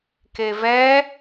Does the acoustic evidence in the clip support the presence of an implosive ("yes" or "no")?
no